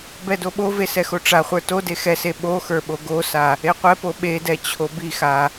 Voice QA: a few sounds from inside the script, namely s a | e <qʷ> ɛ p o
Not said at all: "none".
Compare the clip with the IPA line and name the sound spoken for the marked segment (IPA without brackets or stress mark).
qʷ